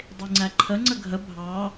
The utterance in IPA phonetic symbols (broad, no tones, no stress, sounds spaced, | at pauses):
dˤ i ŋ͡ǀ æ ǃʰ ə ŋ͡ǀ ə ɡʱ ə bʱ ɑ